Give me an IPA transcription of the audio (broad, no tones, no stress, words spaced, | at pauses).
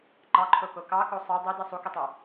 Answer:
ŋ͡ǃɑǃʰoko kɑko sˤe dˤide sˤukɯtˤæ